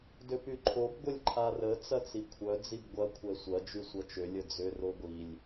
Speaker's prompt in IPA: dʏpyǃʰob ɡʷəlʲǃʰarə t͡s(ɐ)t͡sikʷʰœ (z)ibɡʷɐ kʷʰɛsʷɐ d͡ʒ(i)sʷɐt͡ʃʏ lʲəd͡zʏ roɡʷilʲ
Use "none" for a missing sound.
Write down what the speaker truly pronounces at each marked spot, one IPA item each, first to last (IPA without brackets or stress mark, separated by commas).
ɐ, d͡z, y